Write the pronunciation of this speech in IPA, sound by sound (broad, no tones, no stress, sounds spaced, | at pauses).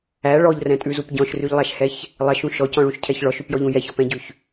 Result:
æ ɭ ɔ ʎ r ɛ̃ tʼ ʉ z u p ɟ ɔ̃ ʃ r y ʎ lˠ æ ʃ h ɛ ç | lˠ ɛ ʃ ũ ʃ ɔ c ɔ̃ ɭ ũ ʃ cʰ ɛ ç ɭ ɔ ʃ ʉ p j ɔ ʎ ũ j ɛ ç ɔ p ɛ̃ ɟ ʉ ç